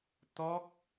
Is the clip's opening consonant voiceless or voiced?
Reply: voiceless